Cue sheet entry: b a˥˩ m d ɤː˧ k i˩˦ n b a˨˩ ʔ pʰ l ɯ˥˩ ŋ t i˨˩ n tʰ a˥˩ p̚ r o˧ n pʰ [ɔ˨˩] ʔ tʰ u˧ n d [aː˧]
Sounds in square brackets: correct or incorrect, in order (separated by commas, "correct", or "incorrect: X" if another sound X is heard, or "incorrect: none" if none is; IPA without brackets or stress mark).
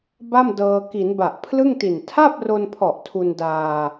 correct, correct